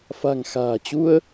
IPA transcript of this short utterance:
f a̤˨˩ ŋ x a̤ː˨˩ t͡ɕ u˧ ə̯

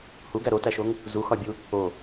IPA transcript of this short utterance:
h u ɡ æ ɾ o t æ ʃ o ŋ | z u x ɒ bʲ u | o

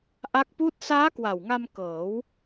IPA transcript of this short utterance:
ʔ a˦˥ k̚ p uː˥˩ t̚ s aː˦˥ k w a˨˩ w ŋ a˧ m k ɤː˩˦ w

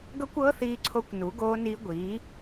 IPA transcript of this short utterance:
ɡ ɤ˦˥ kʷ ɤː˦˥ θ iː˦˥ ǀʰ o˦˥ kʷ n u˨˥ ɡ oː˦˥ n iː˦˥ ɡʷ iː˨˥

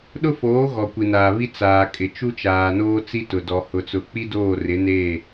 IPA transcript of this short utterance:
ɗ ʊ˦ f oː˨˦ ɣ ɔ˨ kʷ i˨ n aː˨ β i˦ t͡s aː˨ kʼ ɪ˨ t͡ʃ u˦ t͡ʃ aː˨ n oː˦ t͡s i˦ t ʊ˨ d ɔ˨ h ʊ˨ t͡s ʊ˨ k͡p i˦ d oː˦˨ r ɪ˨˦ n eː˦˨

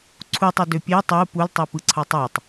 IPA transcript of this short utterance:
ǀʰ u tˤ i d ø pʲ e tˤ o u̯ p u l tˤ i p ɯ ǀʰ ɑ tˤ æ tˤ

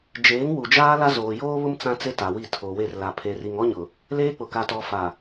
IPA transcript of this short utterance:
d͡ʒ eː˨˦ ŋ w u˨ d͡ʒ aː˦ l a˦ z oː˨ j oː˦ β ʊ˦ m t͡s ã˦ t͡s e˦ t a˨ w i˦˨ tʰ o˨ w e˦˨ r l a˨ pʰ e˨ r i˨ ŋ ɔ˦ ɲ ʊ˨ | l eː˦ k͡p ʊ˨ k a˨ t ɔ˨ f a˨

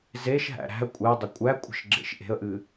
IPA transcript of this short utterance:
z e ʃ ɦ æ̰ ɾ æ̤ ə̯ kʷʼ e dˤ ə kʷʼ æ kʷʼ ə̤ ʃ ɡ͡ǁ ḛ ʃ ʔ e̤ ə̯ ʔ ɨ

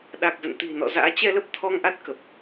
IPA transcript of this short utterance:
ɗ a˨˩ k̚ z ə̰˧˨ n t̪ i̤˨˩ n ɔ̰˧˨ z a̰ː˧˥ t͡ɕ ɛ˧ l ə˦˥ p̚ t̪ʰ ɔ˧ ŋ ʔ a˦˥ t̚ k ə˨˩ p̚

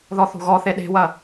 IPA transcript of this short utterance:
ð ɔ θ o̤ ɣ ɔ θ e ɗ e̤ w ɐ

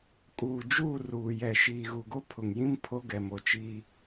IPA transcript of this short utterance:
kʼ uː˨ d͡ʒ uː˦˨ r uː˨ j ɛ˨ ʃ iː˨ ɣ u˨ ɡ o˦ pʰ ʊ˨ ŋ j ĩ˦ m pʰ o˦ ɡ ɛ˨ m o˨ t͡ʃ iː˦

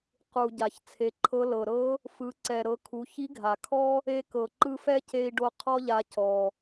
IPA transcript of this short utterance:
q u˩ ɟ a˩ ç t͡sʰ e˩˧ ǃʰ ɤ˧˥ l ɤ˩ ɾ ɤ˧˥ | f ɯ˩˧ ǀ ɛ˩ ɾ ɤ˩˧ kʰ u˩˧ ç i˧˥ ɡʱ a˩ kʰ ɔ˥ | e˧ k ɤ˩ ǃ ɯ˧ f ɛ˥ c e˧ i̯ ɖ o˧ qʰ ɔ˥ ʎ a˧ c ɔ˩

